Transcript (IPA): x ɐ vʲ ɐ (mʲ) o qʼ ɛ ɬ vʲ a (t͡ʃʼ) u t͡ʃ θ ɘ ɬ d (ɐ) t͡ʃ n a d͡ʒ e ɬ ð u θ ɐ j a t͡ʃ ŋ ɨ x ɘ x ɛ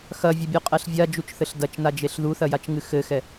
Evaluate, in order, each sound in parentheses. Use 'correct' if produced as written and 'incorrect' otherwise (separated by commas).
incorrect, incorrect, correct